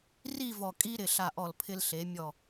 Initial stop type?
ejective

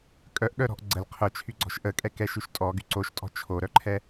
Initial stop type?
ejective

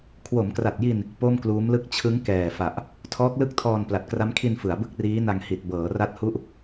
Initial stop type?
aspirated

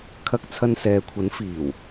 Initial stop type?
aspirated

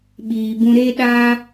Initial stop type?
implosive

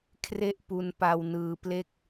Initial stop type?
aspirated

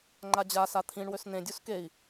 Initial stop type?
click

